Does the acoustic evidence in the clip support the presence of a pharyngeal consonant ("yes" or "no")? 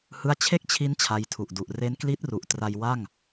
no